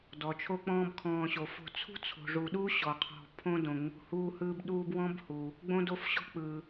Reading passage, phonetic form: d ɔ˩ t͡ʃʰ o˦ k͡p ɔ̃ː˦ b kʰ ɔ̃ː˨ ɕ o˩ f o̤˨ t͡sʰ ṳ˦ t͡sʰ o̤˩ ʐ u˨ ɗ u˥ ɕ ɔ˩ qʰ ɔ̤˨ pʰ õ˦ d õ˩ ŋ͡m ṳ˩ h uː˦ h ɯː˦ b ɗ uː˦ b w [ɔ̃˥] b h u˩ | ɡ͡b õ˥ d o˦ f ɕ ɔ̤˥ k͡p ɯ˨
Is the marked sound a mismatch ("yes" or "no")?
no